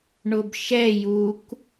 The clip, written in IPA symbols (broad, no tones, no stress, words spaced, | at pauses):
ɳʊbʃɛ juk